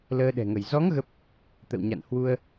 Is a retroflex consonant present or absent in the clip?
absent